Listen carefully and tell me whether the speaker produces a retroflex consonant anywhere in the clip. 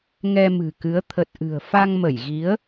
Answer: no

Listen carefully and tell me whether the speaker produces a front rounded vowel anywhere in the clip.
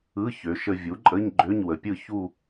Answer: yes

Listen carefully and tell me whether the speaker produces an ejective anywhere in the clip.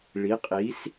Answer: yes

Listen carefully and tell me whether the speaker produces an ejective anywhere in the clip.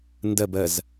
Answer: no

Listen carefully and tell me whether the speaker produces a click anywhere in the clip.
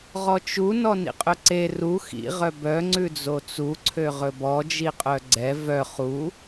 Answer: yes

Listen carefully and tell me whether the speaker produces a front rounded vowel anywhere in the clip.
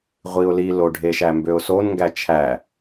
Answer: yes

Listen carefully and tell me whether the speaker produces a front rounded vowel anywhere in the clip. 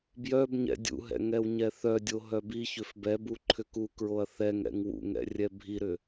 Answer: yes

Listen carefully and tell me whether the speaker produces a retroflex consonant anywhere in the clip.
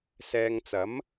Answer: no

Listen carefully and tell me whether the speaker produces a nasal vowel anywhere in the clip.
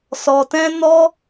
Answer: yes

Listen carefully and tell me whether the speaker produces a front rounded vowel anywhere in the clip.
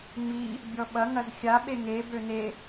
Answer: yes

